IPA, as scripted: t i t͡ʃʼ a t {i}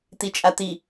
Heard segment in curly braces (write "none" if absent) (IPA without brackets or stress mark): i